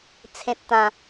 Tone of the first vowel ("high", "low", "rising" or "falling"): low